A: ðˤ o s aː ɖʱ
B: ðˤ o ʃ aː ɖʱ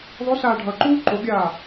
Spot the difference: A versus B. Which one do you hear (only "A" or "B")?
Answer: A